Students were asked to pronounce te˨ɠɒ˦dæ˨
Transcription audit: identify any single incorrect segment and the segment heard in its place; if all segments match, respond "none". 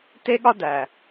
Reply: e˨ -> e˦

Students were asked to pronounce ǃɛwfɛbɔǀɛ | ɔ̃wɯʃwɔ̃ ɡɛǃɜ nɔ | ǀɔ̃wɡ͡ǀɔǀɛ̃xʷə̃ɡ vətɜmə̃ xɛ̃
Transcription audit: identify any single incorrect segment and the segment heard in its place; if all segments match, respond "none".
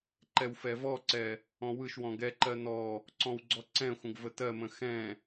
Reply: b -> v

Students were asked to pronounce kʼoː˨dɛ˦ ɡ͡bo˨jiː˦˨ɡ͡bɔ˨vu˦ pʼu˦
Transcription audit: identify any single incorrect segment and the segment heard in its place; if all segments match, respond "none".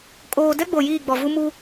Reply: pʼ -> m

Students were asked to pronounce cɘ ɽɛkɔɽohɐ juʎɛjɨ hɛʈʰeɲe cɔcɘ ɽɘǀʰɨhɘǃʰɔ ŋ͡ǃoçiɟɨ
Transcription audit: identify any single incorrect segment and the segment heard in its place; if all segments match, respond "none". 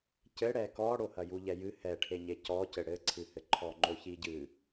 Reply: none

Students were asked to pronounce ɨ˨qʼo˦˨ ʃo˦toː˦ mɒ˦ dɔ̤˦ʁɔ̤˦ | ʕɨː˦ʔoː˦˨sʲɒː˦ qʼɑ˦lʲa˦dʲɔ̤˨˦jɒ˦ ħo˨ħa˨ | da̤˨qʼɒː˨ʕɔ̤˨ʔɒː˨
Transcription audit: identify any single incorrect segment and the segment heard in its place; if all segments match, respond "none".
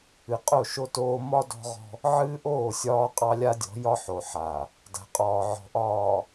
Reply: none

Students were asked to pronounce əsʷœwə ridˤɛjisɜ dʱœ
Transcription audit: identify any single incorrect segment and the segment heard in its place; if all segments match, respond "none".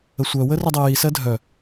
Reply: none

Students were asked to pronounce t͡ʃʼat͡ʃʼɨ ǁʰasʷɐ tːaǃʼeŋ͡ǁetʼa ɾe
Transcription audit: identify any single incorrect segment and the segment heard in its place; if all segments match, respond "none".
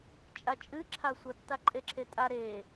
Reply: ŋ͡ǁ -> ǁʰ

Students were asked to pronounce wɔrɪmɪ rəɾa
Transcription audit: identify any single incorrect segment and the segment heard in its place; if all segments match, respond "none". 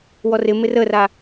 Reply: ɾ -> r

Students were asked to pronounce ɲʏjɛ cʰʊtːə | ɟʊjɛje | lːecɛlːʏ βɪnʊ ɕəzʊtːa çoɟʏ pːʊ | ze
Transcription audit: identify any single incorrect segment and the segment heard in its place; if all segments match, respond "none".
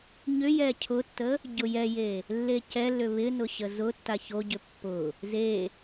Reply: none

